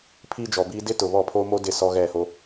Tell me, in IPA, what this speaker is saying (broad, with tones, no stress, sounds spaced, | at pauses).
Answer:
pʰ iː˦ d͡ʒ ɔ˨ b iː˦ d ɪ˦ t ʊ˨ β ɔ˦˨ pʰ oː˦ m o˦ d ɪ˦˨ s ɔ˦ ɣ ɛ˦˨ h o˦